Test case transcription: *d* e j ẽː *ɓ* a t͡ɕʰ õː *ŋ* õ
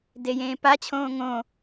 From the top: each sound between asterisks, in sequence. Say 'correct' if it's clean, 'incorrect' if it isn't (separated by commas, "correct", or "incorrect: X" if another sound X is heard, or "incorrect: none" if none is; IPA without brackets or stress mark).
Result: correct, incorrect: p, correct